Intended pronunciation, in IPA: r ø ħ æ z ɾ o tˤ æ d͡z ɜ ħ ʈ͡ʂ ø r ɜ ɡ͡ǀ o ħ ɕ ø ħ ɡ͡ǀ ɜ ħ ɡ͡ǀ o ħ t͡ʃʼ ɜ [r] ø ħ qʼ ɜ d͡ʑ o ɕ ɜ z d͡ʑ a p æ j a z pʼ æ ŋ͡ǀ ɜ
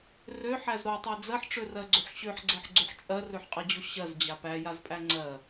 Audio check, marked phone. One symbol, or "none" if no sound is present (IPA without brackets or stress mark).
r